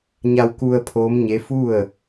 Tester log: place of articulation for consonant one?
palatal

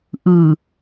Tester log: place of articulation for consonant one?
glottal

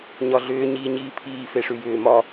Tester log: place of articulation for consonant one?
palatal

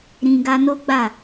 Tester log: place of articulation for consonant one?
alveolar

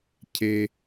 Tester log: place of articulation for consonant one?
palatal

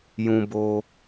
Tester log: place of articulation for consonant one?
palatal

